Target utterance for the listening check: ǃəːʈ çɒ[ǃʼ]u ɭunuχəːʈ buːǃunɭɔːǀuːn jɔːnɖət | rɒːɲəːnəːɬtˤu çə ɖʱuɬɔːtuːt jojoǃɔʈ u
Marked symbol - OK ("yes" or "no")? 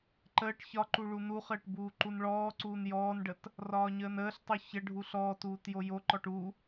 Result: no